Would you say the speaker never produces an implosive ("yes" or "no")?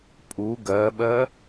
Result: no